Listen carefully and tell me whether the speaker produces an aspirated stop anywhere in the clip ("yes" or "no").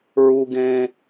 no